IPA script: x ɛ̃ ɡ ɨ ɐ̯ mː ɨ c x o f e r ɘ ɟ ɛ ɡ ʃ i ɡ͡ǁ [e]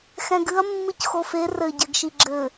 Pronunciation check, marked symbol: incorrect: ɘ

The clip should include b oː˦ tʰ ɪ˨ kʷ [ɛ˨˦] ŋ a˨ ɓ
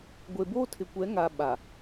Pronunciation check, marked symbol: correct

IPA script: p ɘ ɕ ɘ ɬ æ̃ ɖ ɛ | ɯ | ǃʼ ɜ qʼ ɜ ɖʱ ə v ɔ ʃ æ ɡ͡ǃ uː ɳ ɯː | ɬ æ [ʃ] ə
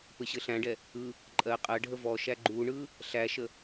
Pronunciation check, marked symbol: correct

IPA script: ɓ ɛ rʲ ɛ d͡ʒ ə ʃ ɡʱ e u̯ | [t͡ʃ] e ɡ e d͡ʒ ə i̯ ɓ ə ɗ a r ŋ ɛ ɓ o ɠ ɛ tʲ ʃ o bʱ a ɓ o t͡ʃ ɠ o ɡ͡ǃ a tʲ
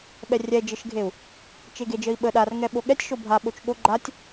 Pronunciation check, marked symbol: correct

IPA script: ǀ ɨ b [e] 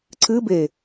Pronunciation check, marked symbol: correct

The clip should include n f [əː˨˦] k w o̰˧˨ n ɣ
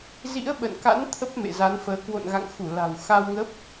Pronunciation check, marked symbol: correct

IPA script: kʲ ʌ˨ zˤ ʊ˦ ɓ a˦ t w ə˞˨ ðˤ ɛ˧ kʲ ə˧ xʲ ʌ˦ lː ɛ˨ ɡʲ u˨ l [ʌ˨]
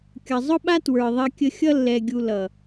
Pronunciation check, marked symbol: correct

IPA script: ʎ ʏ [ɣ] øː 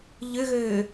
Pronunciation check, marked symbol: correct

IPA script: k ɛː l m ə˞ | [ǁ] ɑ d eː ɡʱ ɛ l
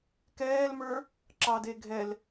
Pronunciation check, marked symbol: correct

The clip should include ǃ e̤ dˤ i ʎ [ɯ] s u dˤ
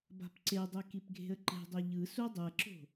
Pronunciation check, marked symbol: correct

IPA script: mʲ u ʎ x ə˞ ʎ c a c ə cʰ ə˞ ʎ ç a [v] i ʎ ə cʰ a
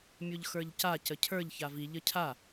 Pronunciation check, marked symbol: correct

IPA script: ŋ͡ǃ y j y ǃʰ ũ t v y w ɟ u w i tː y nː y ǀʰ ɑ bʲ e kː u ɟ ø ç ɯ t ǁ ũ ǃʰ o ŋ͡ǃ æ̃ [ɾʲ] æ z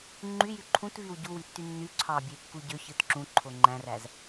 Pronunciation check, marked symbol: incorrect: r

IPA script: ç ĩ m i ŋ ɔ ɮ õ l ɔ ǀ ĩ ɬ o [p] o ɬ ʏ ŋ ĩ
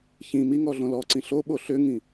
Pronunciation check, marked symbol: incorrect: ɓ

